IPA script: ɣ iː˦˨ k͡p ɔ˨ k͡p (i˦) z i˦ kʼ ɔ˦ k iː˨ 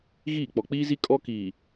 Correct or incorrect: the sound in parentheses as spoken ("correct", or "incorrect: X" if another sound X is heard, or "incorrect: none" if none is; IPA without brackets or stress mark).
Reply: incorrect: iː˦